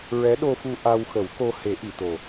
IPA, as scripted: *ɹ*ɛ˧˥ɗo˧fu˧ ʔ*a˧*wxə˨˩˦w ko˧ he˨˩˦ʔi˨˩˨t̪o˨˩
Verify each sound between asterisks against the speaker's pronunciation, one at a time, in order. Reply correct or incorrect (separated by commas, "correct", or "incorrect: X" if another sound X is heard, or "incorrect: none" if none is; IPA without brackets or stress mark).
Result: correct, correct